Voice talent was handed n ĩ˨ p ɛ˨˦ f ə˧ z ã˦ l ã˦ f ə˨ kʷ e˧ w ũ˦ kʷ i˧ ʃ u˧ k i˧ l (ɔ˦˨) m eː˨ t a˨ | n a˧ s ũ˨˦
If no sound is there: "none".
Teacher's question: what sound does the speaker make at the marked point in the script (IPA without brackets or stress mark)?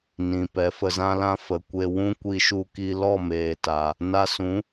ɔ˦˨